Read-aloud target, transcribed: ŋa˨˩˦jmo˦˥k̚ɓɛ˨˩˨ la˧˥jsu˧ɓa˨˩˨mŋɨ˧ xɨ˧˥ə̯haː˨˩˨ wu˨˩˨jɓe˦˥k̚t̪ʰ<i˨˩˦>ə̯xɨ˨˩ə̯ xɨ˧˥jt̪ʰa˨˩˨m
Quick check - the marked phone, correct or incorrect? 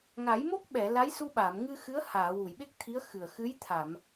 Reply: incorrect